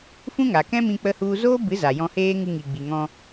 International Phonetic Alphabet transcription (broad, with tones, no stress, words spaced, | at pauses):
fũ˦ŋa˨ kɛ̃˦mĩ˧ k͡pə˦hu˦ zoː˦bɨ˨˦ za˨jɔ̃˧heː˦ ŋɨ˧ŋi˨ɡ͡bi˨ ŋɔ̃˧